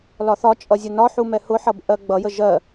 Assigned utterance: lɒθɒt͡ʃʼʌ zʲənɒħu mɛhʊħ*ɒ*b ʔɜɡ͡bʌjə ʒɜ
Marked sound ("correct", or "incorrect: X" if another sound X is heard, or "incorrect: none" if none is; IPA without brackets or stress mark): incorrect: ʌ